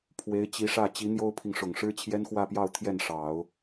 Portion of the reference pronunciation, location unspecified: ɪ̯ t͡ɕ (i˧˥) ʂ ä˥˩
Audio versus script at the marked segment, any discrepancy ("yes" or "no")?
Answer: no